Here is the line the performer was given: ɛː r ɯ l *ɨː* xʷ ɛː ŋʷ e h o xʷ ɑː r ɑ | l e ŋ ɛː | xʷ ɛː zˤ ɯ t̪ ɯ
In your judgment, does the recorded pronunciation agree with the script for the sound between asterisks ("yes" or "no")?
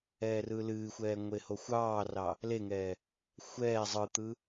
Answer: yes